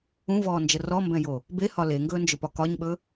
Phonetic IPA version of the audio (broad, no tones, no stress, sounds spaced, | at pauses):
ũ v ɔː n d͡ʒ ə r ɔ m b ɛ̃ j o | b e h ɒ l e ŋ ɡ ɵː n d͡ʒ ɵ p ɒ k ɒ ɲ ɓ ɵ